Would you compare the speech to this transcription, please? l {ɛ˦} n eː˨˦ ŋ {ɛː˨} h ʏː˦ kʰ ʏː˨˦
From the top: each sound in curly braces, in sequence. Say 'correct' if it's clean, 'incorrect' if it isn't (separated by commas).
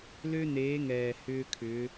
incorrect, correct